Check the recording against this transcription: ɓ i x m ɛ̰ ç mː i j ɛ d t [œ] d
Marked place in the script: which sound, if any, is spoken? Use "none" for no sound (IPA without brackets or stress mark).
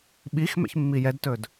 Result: ɵ